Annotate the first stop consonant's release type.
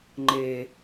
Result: click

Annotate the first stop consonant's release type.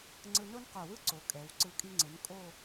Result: click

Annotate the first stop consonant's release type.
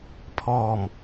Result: aspirated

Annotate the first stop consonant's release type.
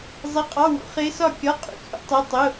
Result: ejective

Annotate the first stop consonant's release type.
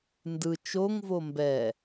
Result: plain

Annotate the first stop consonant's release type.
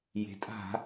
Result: ejective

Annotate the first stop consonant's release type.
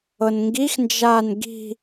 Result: plain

